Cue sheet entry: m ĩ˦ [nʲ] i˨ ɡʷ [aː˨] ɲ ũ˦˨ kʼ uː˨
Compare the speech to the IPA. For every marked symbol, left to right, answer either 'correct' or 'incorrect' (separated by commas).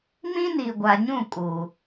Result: incorrect, incorrect